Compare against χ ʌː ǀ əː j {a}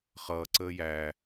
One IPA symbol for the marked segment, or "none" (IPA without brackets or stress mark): æ